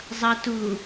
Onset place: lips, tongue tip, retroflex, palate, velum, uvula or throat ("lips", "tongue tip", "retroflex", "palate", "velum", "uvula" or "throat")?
tongue tip